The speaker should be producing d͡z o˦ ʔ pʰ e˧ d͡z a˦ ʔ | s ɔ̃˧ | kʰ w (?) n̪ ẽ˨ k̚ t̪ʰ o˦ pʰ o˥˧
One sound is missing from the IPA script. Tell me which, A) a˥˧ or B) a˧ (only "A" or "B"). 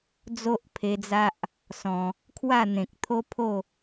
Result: A